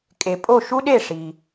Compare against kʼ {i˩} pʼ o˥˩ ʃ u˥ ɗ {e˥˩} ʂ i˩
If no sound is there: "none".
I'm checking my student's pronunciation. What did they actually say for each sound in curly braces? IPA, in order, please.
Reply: e˩, e˥˩

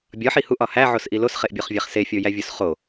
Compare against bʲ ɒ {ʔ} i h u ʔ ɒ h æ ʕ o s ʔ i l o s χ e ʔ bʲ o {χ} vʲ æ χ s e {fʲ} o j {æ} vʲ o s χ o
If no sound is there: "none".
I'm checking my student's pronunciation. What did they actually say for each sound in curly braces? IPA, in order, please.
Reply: ħ, χ, fʲ, æ

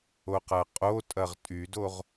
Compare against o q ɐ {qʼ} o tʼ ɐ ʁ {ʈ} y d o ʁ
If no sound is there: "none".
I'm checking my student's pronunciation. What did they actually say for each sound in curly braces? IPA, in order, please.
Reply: qʼ, tʼ

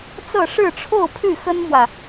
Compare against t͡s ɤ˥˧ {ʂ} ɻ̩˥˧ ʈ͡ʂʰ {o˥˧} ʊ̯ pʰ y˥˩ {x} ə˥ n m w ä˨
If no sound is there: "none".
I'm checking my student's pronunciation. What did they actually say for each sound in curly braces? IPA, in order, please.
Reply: ʂ, o˥˧, x

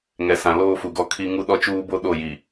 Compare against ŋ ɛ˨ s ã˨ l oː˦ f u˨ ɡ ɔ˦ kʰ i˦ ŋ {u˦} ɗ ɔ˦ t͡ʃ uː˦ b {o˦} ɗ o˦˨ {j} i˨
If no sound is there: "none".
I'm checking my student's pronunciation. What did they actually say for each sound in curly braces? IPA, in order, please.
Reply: u˦, o˦, j

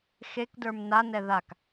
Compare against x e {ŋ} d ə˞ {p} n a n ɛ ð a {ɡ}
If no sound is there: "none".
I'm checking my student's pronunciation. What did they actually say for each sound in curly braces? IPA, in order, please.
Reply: k, m, k

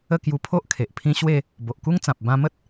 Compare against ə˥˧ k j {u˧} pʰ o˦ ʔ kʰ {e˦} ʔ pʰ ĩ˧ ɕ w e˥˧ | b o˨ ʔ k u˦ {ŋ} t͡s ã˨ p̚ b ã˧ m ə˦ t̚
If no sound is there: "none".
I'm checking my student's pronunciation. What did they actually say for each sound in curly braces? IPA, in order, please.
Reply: u˧, e˨, ŋ

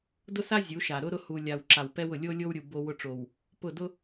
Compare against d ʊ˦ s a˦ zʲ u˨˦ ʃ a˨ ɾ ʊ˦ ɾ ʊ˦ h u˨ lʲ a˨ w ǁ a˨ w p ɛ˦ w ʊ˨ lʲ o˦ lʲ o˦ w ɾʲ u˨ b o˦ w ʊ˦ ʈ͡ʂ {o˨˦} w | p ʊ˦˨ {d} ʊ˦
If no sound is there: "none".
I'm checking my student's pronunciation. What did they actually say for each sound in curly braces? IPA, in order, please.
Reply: o˨, d

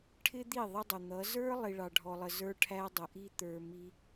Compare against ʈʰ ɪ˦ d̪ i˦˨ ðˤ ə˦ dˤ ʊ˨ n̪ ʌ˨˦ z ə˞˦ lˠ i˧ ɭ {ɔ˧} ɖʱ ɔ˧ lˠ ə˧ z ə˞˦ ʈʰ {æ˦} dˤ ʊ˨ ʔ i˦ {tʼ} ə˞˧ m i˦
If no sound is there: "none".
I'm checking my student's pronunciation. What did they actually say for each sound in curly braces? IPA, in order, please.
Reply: ɑ˧, æ˦, t̪

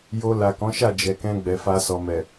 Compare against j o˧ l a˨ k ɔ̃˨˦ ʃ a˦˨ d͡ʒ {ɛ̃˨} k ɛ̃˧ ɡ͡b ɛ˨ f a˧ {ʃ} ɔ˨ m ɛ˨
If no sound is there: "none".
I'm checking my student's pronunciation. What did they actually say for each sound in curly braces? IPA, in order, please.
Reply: ɛ˨, s

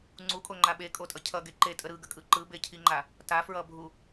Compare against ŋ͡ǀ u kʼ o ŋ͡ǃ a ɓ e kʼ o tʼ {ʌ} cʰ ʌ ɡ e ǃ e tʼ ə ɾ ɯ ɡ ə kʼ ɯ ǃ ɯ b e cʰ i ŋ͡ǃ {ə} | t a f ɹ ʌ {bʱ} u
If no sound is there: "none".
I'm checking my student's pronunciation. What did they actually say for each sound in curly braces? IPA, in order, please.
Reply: ʌ, a, bʱ

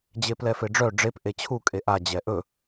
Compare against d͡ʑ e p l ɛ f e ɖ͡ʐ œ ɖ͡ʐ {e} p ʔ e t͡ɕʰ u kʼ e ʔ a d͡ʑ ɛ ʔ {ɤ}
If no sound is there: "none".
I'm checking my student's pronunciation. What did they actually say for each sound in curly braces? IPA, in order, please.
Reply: e, ɵ

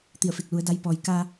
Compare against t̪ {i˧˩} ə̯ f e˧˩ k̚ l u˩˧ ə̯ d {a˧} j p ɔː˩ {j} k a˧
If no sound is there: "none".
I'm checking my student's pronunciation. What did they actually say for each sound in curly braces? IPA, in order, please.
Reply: i˧˩, a˧, j

